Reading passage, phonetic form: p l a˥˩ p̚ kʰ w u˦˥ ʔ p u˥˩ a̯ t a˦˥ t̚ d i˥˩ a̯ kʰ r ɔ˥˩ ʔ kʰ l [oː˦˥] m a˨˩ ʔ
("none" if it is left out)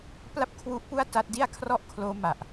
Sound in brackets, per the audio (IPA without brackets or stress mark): oː˦˥